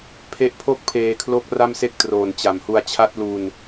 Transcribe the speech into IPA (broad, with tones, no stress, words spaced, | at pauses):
pʰe˦˥ʔpʰo˥˩k̚pʰeː˧kʰlo˦˥k̚ ra˥˩mse˥˩k̚ troː˨˩nt͡ɕa˨˩mhu˧a̯ t͡ɕʰa˦˥t̚lu˧n